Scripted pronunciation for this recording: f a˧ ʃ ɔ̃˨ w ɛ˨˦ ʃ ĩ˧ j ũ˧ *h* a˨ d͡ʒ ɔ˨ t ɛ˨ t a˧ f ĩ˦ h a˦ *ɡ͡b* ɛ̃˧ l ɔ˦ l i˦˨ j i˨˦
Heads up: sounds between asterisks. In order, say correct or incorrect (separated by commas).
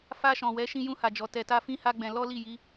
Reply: correct, correct